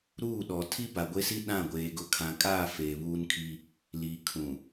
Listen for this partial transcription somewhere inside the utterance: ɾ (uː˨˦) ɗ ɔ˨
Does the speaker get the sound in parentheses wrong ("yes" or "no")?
yes